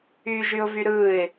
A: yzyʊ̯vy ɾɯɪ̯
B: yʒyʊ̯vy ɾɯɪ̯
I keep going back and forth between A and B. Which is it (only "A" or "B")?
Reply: B